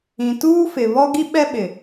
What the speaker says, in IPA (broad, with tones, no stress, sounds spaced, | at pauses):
ĩ˨ t uː˦ f ɪ˨ β ɔ˦ ɡ i˦ ɓ ɛ˦ ɓ ɪ˨